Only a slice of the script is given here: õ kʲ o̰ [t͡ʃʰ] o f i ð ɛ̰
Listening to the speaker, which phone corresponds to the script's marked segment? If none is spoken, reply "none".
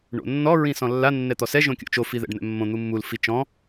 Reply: t͡ʃ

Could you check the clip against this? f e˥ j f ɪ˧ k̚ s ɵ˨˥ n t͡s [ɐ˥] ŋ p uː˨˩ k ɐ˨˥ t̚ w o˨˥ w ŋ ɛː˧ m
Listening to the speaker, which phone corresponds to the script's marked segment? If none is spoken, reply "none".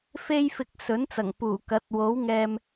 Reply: ɐ˨˩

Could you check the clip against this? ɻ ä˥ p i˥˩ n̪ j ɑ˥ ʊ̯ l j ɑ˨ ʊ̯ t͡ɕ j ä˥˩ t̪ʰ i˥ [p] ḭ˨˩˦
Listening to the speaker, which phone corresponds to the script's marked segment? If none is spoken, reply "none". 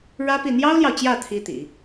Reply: t̪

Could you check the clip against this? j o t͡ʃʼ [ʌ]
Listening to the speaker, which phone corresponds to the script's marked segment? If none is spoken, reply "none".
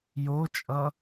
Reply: ʌ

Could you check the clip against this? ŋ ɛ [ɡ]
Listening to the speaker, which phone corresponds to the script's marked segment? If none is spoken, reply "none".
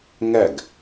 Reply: ɡ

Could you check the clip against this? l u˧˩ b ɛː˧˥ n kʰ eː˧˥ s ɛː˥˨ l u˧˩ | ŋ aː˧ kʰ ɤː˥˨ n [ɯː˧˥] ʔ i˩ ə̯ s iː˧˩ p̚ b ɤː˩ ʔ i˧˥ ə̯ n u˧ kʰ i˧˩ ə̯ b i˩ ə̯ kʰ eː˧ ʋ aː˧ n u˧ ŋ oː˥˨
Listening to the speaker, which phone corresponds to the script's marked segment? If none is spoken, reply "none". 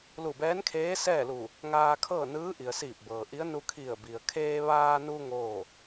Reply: ɯː˧˥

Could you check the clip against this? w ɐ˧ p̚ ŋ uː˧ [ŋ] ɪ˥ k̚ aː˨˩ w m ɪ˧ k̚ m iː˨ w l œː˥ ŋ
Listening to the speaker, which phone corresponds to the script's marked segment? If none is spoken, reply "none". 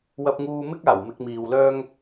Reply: m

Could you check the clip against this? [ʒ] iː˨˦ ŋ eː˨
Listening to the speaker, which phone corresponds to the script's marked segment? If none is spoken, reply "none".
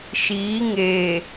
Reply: ʃ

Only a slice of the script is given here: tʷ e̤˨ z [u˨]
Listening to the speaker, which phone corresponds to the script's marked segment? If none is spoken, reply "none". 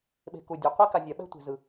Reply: ɯ˨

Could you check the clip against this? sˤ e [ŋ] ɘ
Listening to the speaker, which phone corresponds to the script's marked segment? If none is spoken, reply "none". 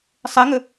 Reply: ŋ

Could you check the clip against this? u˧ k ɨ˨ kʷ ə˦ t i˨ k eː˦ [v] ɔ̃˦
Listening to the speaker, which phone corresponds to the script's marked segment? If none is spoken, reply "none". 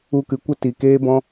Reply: b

